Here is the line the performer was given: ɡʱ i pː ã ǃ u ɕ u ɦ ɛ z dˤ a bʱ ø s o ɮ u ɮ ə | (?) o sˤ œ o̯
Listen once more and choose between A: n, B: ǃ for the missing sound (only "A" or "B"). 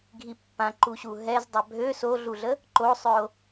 B